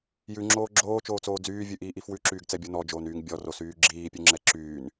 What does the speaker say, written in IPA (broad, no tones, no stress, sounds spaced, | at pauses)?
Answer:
j ʉ ŋ͡ǁ oː ɡ͡ǁ oː t͡ʃ oː t͡s oː d͡z yː vʲ ʉ ʔ iː ʔ i f w ʉ ǁ yː ɡ t͡s ɛ bʲ o n ɔ d͡ʒ oː n yː ŋ bʲ ɔ r o s yː ɡ͡ǁ iː pʲ ʉ ŋ͡ǁ ɛ ǁ yː n